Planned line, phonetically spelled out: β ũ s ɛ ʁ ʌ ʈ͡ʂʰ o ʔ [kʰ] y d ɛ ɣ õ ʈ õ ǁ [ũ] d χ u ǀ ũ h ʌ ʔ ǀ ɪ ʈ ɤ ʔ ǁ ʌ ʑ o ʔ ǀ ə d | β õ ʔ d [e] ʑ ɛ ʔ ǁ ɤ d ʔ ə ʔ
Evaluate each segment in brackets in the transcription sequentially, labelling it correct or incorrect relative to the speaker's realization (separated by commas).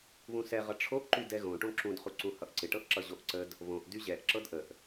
incorrect, correct, incorrect